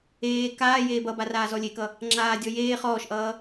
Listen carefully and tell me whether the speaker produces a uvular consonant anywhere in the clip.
yes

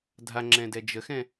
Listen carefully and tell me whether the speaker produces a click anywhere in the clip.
yes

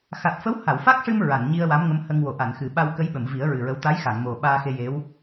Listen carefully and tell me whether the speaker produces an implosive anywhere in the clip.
yes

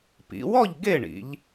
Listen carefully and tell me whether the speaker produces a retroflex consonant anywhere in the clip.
yes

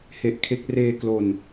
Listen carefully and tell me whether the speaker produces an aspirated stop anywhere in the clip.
yes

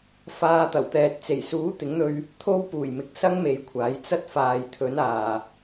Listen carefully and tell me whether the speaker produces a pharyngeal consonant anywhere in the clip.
no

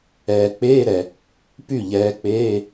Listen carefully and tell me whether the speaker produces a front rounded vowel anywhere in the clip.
yes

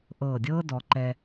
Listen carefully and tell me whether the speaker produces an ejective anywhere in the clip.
no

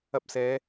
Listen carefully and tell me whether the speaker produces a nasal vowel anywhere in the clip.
no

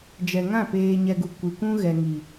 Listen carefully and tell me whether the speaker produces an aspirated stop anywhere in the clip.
no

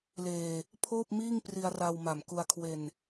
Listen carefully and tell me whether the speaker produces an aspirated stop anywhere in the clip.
yes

